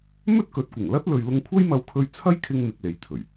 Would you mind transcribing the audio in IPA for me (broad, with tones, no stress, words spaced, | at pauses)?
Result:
mɵ˥t̚kɵ˨˥t̚kʷɪ˨˩ŋ lɐ˥t̚lɵ˨ɥ lʊ˥ŋ kʷʰɐ˥jmɐ˧wkʰɵ˧ɥ t͡sʰɐ˥jkʰɪ˧ŋ mɪ˧k̚le˨j t̪ʰɵ˨˩ɥ